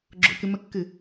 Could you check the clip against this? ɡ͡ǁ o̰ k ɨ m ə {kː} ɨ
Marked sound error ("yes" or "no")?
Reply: no